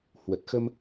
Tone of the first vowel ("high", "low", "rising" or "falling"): low